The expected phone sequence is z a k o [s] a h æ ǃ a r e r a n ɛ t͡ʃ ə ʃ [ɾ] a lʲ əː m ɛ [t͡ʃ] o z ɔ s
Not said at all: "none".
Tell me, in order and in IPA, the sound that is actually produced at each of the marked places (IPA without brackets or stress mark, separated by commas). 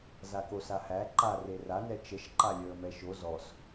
s, ǃ, ʃ